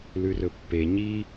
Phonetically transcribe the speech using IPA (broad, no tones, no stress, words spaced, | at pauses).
lʉrɵpːe ɲi